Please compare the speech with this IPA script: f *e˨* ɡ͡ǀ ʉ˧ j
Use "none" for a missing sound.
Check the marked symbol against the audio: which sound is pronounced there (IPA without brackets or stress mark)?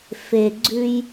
e˨